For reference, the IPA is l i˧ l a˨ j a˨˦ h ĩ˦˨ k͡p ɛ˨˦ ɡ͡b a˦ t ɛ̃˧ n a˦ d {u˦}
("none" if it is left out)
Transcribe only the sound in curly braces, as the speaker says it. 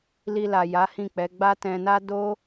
o˦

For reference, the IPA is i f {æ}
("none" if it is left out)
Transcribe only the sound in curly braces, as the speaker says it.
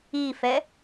ɛ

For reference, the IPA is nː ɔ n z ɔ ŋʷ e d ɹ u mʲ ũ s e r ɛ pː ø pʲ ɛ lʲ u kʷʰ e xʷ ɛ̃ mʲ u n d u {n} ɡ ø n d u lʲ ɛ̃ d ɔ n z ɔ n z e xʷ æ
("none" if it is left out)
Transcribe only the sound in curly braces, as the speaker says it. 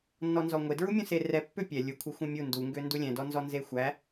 ŋ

